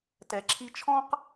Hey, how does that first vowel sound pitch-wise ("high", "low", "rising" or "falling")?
low